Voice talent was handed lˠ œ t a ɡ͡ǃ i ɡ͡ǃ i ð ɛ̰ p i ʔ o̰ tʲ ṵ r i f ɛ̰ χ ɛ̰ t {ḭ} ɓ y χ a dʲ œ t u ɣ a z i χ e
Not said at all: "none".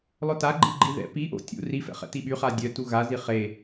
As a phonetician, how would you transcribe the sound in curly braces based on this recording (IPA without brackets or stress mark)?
i